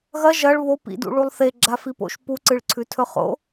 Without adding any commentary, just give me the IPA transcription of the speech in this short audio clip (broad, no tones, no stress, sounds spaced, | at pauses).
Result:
ɣ ɐ ʒ ɐ ɭ β o p ḭ d ṵ ɭ u lˠ θ e ɡ͡ǁ a f i p o̰ ʃ p u ǀ ɨ ɭ ǀʰ ʉ tʰ ɵ χ o̰